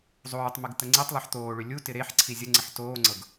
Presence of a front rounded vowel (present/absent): present